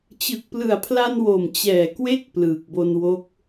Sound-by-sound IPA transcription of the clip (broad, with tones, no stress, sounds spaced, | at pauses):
t͡ɕ ɯ˨˩ k̚ p l ɯ˨˩ a̯ pʰ l a˧ n w o˨˩ m t͡ɕ ɛː˨˩ k w e˥˩ k̚ p l ɯː˨˩ k̚ b o˧ n w o˦˥ k̚